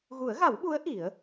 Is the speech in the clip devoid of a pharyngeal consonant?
yes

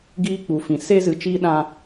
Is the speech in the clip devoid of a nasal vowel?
no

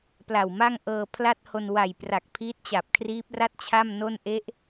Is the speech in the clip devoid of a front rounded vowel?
yes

